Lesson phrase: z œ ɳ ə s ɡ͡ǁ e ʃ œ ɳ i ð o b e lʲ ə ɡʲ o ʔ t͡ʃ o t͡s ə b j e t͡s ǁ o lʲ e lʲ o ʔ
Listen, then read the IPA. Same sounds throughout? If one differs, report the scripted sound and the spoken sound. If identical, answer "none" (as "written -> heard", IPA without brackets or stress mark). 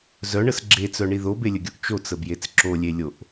ʃ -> t͡s